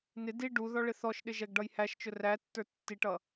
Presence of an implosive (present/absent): present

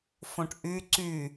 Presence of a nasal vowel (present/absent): present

